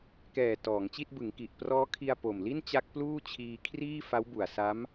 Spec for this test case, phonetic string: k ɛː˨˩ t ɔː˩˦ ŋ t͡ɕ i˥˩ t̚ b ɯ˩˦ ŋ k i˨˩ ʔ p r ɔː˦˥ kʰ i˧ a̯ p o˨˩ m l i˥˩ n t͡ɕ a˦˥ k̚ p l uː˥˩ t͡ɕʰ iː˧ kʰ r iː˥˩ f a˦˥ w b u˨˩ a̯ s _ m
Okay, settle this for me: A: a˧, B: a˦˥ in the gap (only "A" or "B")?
B